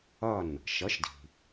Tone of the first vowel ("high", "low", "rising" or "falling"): falling